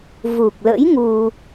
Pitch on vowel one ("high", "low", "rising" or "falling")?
low